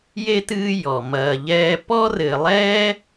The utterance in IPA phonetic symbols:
je˥tɨː˦ jɔ˩ mɐː˨ʎɛː˦ pɔ˥rɘ˨lˠɛː˥

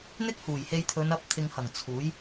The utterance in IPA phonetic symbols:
n̪ɪ˥k̚huː˨˩j he˧jt̪ʰɵ˨˧nɐ˧p̚ t̪ʰɪ˨ŋhɐ˨˩ŋ t͡sʰuː˨˥j

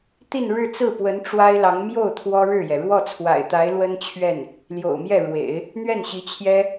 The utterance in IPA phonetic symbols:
t̪i˥˧n ɻɻ̩˥˧t͡sɹ̩˥˩pwə˧˥n ʈ͡ʂwa˥ɪ̯lɑ˧˥ŋ mjo˥˩ʊ̯ t̪ʰwɔ˥ɻɻ̩˥˩jɛ˩ ɻwɔ˥˩t͡sʰwa̰˨˩ɪ̯t̪a˧˥ɪ̯ lwə˥nt͡ɕʰɥɛ˥˩n | ljo̰˨˩ʊ̯mjɛ˥˩ɻwḛ˨˩˦ɪ̯ | n̪ɥɛ˥˩nɕi˧˥t͡ɕʰjɛ˥

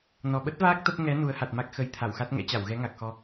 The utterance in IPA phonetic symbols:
nɔ˨˩ɓə˦˥t̚vaː˦˥k̚ t̪ə˦˥p̚ ŋɛ˨˦ nu˨˦ə̯ha˨˩t̚ma˦˥k̚ xə˨˦j t̪ʰa˧˩wxa˦˥t̚ ŋɛ̰˧˥t͡ɕa˧˩wɣɛ˨˦ ŋa˨˩k̚xɔ˧

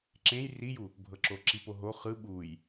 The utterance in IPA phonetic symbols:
ǁẽj riju | bʱɤǁoǁipo ɦo χɯ ɓuj

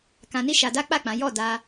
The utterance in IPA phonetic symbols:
kã˧ni˦ʃa˧ da˦k͡pa˦˨k͡pã˨˦ jɔ˦˨da˧

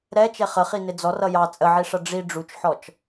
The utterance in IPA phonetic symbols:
ɾɛt͡ʃɛ χəχinɪ d͡zɔr ʌjɑ t͡sʼəʕiʂʌ ɖ͡ʐi ɖ͡ʐut͡ʃħɔt͡ʃ

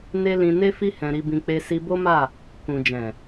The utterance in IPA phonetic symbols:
ne˦ lĩ˧ ne˦fi˦ hɛ̃˧ɾi˧bĩ˧ k͡pe˧si˧bo˦ma˦˨ | kũ˨ d͡ʒɛ̃˨

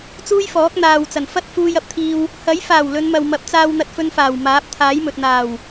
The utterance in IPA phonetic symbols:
t͡suː˥jfɔː˨˥k̚n̪aː˨wt͡sɐ˨˩n fɐ˥t̚fuː˧jɐ˧p̚t̪ʰiː˧w | hɐ˨˥jfaː˨˩w lɵ˨˧nmɐ˨wmɐ˨˥p̚t͡saː˧w n̪ɐ˧t̚fɵ˧nfaː˨˩w maː˨˥p̚t̪ʰaː˨˥jmɵ˨t̚ n̪aː˨˩w

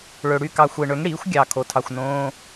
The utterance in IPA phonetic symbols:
ɭø˨ɽy˦˨ kɑ˨xʷe˨ɳø˩˥ŋ ɽiː˩˥xʷɡʲɑ˨ kʰo˩˥tʰɑ˨xʷnõː˧˥˧

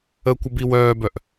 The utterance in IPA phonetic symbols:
əkʷəbi wœːbœʔ

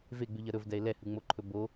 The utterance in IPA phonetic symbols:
veɡ͡bʉʎɐ ɾɵvdɛe̯ lɛhɯŋ͡moǃʰɵ bo

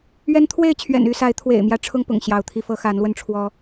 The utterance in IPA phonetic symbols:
ɥɛ˦n t̪ʰwe˥˨ɪ̯t͡ɕʰɥɛ̰˨˩ny˥˨sa˨˦ɪ̯ t̪ʰwḛ˨˩ɪ̯mjä˨˦ ʈ͡ʂʰʊ˦ŋpʊ̰˨˩ŋ ɕjɑ˨˦ʊ̯t̪ʰi˧fɤ˦ xa˨˦nlwə˧nʈ͡ʂʰwɔ˦

